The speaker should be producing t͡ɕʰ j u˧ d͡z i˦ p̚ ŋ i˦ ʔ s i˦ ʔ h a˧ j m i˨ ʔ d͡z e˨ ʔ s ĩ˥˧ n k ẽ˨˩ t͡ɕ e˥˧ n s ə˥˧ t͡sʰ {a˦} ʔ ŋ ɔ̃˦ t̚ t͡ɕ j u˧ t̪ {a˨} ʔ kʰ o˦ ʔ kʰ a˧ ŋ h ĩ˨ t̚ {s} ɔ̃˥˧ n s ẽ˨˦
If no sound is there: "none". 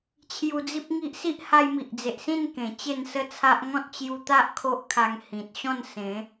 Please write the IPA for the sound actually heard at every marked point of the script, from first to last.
a˦, a˦, ɕ

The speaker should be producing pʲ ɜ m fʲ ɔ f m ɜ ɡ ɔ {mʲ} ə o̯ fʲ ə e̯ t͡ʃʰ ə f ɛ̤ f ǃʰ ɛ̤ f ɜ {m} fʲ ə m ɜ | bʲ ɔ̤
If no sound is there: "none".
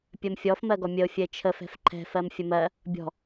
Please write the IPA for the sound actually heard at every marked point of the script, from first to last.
mʲ, m

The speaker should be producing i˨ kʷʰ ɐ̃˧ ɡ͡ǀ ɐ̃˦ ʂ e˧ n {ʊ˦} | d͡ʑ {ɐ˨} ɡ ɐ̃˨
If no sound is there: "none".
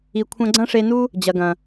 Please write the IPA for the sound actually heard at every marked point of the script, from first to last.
u˦, ɐ˨

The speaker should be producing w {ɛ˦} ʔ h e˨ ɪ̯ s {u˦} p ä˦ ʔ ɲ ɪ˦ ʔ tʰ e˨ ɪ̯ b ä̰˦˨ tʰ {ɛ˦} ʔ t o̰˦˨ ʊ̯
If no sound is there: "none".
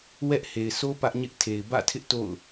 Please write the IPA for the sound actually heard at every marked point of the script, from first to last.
ɛ˦, o˦, ɪ˦

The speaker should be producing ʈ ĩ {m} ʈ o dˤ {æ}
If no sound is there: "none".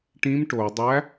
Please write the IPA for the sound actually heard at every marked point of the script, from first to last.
m, æ

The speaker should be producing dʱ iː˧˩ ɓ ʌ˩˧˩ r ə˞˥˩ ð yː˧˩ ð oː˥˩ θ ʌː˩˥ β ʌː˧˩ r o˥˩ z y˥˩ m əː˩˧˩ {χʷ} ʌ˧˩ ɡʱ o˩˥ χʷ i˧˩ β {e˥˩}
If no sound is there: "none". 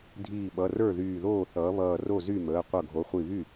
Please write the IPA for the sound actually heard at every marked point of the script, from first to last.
qʷ, y˥˩

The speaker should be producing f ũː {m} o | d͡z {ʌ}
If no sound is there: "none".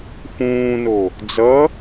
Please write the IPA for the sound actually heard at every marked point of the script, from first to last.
n, ʌ

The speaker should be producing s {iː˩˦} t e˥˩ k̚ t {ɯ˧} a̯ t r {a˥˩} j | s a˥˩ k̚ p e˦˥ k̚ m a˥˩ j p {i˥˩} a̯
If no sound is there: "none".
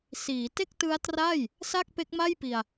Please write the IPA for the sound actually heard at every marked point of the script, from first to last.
iː˩˦, ɯ˦˥, a˥˩, i˧

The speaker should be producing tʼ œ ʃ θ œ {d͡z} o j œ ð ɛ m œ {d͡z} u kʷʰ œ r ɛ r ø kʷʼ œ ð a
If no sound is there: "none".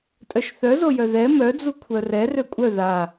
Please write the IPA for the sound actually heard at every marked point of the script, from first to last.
z, d͡z

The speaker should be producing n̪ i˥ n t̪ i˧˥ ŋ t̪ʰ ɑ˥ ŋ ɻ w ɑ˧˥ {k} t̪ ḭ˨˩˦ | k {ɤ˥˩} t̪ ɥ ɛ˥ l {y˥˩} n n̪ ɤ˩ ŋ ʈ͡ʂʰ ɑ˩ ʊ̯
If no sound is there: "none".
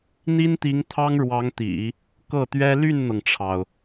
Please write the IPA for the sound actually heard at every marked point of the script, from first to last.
ŋ, ɤ˥˩, y˥˩

